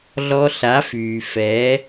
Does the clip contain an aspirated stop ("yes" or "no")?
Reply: no